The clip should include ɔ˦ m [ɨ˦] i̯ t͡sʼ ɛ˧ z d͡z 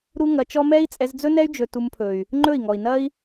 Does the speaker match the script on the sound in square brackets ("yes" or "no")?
no